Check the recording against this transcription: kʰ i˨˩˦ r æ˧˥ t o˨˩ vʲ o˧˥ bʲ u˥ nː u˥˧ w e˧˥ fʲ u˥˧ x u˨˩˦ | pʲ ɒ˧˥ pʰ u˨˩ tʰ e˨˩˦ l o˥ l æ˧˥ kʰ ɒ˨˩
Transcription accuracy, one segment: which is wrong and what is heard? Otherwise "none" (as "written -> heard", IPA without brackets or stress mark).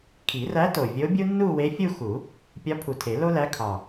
none